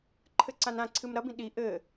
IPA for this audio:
ǃʰ ɘ ǀ ã n ã ǀʰ ɨ m ɾ ɐ b ĩ ɗ i ʔ ɘ

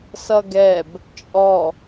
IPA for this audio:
s ʌ ɡ ɛ b | t͡ʃʼ ɔ

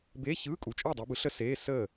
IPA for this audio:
b eː˧˥˧ ç ɯː˧˥˧ kʼ u˨˦ t͡ʃʼ əː˥˨ dˤ ɛ˨˦ b ɯ˨˦ ɬ ə˥ s eː˧˥˧ s əː˥˨

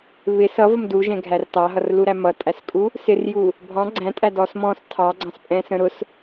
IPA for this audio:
β ɪ s ʌ v ə m d u ʒ ɛ̃ ɡʱ æ r t ɑ ɦ ʌ r l u ɾ æ m ʌ tʼ æ s kʼ u | s ɪ r j u | bʱ ɑ̃ ɡ͡ǀ æ̃ tʼ æ d ɔ s m ɔ̃ s tʰ ɑ ɡ͡ǀ ɑ̃ s pʼ ɛ̃ s ə̃ ɾ ʊ s

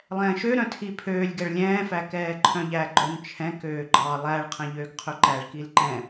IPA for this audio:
lˠ ɛ̃ː ʃ ø ɾ œ̃ tʰ i pʰ øː lʲ ɡ ɛ ɭ lʲ ɛ̃ː f æ k ɛː ǃʰ œ̃ ʎ æ ɡ͡ǃ œ n t͡ʃʰ ɛ̃ k øː ɡ͡ǃ ɑ lˠ æ ɭ qʰ ɛ̃ ʎ øː ɡ qʰ ɵ ǃ æ ɭ k i l ǃ ɛ̃

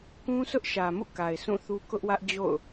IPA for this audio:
k ũ˦ sʰ ʊ˦ ʔ ʃ ä˨ m ṵ˦˨ k a˨ ɪ̯ s ũ˦˨ θ u˦ k ʊ˦ ʔ w ä˦ ʔ d͡ʑ o̰˦˨ ʊ̯

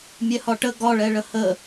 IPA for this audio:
mʲ ɛ h ɒ ʈ ə ɡ ɒ ɭ ɛ ɭ ə h ə

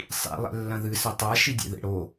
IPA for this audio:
sˤ ḭ lˠ ɛ̰ lː ɐ̃ ð ɨ s ɐ tˤ a ʃ i dʲ ḛ ð ḛ ɽ o

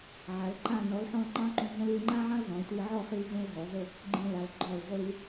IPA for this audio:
ʕ a˩˧ l ǃ ã˥˧ n ɔ˩˧ l ħ ɔ̃˧ l ŋ͡ǃ ɑ̃˥ ǃ ũ˧ ɦ ə̃˥ l i˧ l ŋ͡ǃ ã˥ ʕ ɑ̃˥ l z ɔ̃˩˧ l tʷ i˧ ʕ ɔ˥˧ χ i˧ l z ũ˧ l ɦ ɔ˩˧ z ə˥˧ | ɡ͡ǃ ĩ˧ l a˩˧ l ɡ͡ǃ ɔ˧˩ l ʁʷ i˧ l

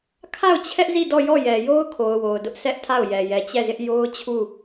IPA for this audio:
kʰ a˦˨ ʊ̯ t͡ɕʰ ɛ˦ ʔ z i˦˨ d ɔ˦˨ j ɔ˦˨ j ɛ˨ j o˦ ʊ̯ kʰ o˨ ʊ̯ w o˨ ʊ̯ d ʊ˦ ʔ s ɛ˦ ʔ tʰ a˦˨ ʊ̯ j ɛ˨ j ɛ˨ t͡ɕ ɛ˦˨ z ɪ˦ ʔ j o˦ ʊ̯ t͡ɕʰ u˦˨

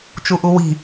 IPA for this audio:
t͡ʃ u ʔ u w i̤

